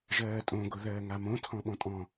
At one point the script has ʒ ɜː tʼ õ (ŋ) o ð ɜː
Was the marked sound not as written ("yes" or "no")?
yes